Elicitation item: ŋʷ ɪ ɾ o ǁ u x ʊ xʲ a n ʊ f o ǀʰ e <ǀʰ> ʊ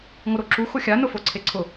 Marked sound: correct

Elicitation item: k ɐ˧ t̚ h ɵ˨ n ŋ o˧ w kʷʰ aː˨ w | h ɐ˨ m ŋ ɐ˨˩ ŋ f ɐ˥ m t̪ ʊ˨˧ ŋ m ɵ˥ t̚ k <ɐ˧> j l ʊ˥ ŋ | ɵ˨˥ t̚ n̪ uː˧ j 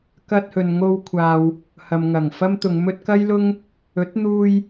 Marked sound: incorrect: ɐ˥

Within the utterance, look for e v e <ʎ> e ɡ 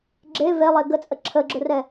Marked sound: incorrect: lˠ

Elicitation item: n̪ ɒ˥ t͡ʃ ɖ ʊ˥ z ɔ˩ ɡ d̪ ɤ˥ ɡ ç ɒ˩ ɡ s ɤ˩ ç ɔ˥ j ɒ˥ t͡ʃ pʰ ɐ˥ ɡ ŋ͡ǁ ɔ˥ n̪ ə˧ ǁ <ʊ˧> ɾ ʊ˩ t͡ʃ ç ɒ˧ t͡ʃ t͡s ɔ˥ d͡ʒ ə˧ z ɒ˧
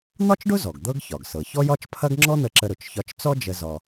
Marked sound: incorrect: ə˧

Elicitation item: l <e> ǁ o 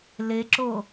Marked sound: correct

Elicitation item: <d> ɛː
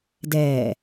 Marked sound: correct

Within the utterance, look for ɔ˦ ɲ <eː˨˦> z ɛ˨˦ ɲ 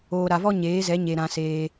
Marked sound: correct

